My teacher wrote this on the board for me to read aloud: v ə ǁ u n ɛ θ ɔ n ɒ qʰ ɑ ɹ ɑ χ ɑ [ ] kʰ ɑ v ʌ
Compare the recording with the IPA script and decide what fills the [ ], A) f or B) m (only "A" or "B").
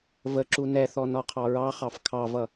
A